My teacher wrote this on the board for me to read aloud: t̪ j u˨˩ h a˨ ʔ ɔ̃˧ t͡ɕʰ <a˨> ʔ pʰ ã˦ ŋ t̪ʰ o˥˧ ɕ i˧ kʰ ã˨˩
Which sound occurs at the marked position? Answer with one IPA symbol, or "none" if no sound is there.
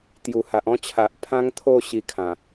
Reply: a˨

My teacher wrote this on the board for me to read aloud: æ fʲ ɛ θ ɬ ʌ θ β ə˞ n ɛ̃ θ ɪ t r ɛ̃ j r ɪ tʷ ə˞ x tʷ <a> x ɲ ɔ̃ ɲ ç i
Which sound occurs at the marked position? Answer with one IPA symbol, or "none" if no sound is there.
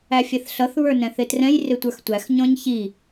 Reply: æ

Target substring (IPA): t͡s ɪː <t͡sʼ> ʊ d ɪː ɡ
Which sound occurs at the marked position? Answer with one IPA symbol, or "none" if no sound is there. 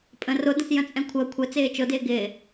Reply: t͡ʃ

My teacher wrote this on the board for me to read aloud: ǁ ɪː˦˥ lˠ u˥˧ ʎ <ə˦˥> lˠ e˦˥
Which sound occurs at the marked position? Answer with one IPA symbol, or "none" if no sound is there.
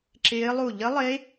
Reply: ə˦˥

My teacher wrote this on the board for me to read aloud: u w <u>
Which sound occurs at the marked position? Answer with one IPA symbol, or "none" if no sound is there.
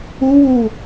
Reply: u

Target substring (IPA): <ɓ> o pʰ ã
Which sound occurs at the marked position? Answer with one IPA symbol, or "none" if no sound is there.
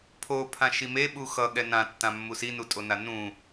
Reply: pʰ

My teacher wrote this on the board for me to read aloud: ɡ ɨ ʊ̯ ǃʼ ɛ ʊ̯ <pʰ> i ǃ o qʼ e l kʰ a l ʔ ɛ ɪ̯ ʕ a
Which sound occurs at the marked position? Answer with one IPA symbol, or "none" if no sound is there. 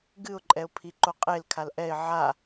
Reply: pʰ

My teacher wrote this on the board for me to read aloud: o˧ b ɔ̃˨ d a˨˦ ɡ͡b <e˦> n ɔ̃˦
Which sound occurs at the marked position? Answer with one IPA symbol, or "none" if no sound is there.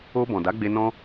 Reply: e˧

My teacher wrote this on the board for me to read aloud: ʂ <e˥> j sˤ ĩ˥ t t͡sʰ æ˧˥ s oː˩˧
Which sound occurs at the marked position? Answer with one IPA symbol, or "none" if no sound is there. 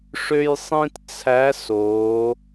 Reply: ø˥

